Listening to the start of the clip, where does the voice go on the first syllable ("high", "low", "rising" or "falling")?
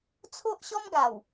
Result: high